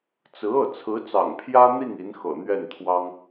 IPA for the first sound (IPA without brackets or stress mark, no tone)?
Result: t͡s